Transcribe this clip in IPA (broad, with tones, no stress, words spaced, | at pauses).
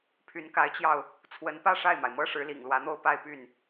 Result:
pʰy˧˥nka˧˥ɪ̯t͡ɕjɑ˧ʊ̯ | t͡sʰwə˧˥npä˥˧ ʂa˥˩ɪ̯ma˩ɪ̯ mɤ˥ʂɻ̩˧˥lḭ˨˩ŋ lwä˧˥n̪o˥˧ʊ̯ pa˥˧ɪ̯ py˥˩n